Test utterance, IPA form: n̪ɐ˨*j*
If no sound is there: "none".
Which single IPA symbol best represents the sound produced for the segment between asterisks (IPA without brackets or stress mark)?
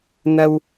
w